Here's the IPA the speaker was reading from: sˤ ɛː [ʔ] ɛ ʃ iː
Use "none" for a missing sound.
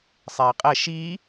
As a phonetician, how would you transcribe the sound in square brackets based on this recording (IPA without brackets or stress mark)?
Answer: qʼ